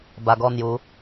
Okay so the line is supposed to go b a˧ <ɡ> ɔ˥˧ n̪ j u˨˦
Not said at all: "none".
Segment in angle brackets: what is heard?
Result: ɡ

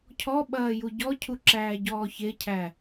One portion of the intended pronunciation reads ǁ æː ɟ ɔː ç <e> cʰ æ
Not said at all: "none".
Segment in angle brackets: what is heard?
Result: e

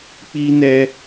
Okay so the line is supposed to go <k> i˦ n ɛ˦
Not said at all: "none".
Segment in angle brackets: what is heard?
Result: k͡p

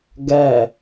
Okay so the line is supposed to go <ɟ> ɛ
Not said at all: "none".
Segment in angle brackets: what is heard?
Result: ɡ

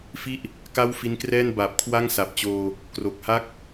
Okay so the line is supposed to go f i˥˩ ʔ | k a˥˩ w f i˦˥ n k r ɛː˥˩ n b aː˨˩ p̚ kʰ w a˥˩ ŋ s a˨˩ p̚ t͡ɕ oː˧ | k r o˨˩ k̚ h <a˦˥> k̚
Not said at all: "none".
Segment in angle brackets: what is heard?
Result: a˦˥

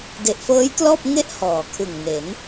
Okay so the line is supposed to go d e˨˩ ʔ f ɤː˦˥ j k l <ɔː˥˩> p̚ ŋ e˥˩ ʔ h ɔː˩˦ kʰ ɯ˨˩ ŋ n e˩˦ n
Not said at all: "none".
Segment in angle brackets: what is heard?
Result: ɔː˥˩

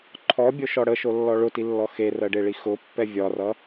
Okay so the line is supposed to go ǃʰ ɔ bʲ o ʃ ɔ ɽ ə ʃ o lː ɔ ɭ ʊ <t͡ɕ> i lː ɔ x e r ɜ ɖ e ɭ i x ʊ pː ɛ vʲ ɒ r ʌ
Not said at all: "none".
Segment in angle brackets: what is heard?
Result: t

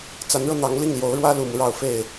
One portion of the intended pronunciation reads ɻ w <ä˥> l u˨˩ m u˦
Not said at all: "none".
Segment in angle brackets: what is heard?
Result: ä˥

